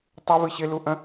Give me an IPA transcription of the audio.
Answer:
tˤ ɨ v ɨ ɕ ɪ l u ʔ ə̃

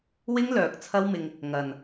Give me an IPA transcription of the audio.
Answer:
w ɪ˥ ŋ l œː˨ k̚ t͡sʰ ɐ˥ w m ɪ˧ ŋ | ŋ ɐ˨ n

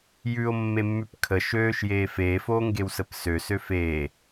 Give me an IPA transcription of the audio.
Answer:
j ʉ o̯ mː e mː ʉ p kʰ ə ʃ øː ʃ j eː f eː f oː ŋ ɡ e w s ə p s ø s ø f eː

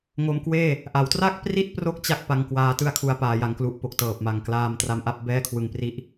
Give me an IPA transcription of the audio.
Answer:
ŋ o˧ m k w eː˥˩ | ʔ a˩˦ w t r a˥˩ k̚ p r i˥˩ t̚ p r o˦˥ k̚ t͡ɕ a˥˩ k̚ p a˧ ŋ k w aː˧ t ɯ˥˩ a̯ kʰ u˧ a̯ p aː˧ j a˧ ŋ k l u˦˥ ʔ p o˨˩ k̚ t ɤː˨˩ p̚ m a˨˩ ŋ k l aː˧ m t r a˦˥ m ʔ a˦˥ p̚ b ɛː˥˩ kʰ w ɯ˧ ŋ p r i˥˩ ʔ

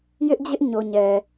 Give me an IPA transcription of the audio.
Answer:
j ɪ˦ ʔ d͡ʑ ɪ˦ ʔ ɲ o˨ ɲ ɛ˨

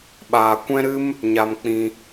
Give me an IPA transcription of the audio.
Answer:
ɓ aː˨ kʷ ɛ̃˦ ɾ ɨ˦ m | ɲ a˨ m k͡p ĩ˧

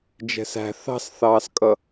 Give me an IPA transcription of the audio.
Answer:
d͡ʒ ɛ̤ s æ̤ θ ɑ̤ s θ ɑː s kʼ ʌ

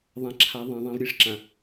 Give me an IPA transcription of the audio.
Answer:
ðˤ ã˨ ǁʰ a˨˦ ðˤ ẽ˨ ðˤ ã˦ v ɾʲ e˦ ʂ ǁ ã˨

